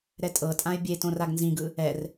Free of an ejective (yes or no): no